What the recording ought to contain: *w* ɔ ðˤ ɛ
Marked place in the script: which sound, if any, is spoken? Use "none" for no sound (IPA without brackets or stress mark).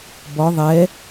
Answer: b